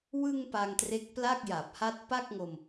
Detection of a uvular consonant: absent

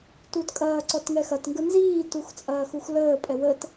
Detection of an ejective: present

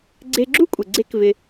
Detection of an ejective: present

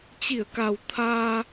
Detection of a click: absent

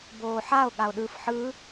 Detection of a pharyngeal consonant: present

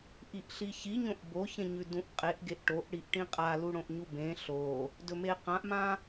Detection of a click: absent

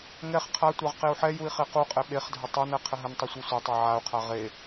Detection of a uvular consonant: present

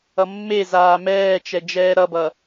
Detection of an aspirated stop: absent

